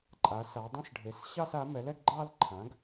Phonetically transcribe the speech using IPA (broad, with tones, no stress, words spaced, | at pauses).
ǃʼa˩˥sa˩˥ dˤẽ˥˧sɖʱe˩˥s ɕɑ˥˧sa˩˥mɛ˩˥lɛ˥˧ɡ ɡ͡ǃɑ˥˧lǃʰã˩˥ɡ